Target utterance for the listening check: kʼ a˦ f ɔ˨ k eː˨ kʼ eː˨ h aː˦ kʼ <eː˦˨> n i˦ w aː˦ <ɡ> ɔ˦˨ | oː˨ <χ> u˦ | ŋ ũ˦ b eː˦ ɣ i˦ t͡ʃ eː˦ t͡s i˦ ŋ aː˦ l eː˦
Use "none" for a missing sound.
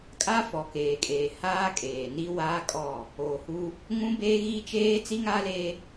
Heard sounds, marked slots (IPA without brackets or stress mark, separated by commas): eː˨, kʼ, h